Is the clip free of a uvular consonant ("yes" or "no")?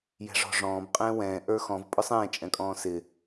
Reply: no